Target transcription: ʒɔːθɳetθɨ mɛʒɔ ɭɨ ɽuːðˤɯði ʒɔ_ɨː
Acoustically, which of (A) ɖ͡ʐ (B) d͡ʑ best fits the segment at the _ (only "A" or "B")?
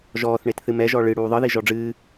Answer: A